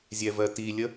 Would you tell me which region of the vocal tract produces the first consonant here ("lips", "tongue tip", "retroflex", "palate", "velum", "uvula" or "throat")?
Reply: tongue tip